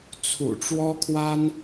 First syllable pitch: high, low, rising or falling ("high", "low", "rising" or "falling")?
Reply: low